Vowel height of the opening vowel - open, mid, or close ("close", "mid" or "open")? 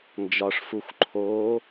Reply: open